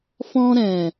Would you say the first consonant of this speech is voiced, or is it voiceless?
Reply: voiceless